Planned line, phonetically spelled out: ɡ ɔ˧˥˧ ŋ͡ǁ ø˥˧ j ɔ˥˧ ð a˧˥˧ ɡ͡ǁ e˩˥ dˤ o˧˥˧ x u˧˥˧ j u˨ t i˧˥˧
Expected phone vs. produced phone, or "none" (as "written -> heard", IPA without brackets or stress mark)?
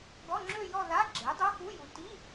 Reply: none